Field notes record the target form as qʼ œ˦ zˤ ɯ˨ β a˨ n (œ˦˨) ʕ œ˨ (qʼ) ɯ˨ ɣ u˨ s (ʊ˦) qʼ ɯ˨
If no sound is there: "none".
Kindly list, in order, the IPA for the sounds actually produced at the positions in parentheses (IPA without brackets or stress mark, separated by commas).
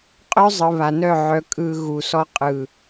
œ˦˨, kʼ, ɔ˦